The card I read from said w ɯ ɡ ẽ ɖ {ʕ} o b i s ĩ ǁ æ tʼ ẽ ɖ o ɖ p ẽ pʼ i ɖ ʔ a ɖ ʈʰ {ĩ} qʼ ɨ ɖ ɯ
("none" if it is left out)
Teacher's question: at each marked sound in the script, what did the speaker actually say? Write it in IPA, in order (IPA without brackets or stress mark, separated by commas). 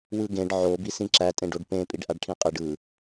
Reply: ʕ, ĩ